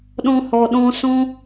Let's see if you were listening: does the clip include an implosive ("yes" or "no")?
yes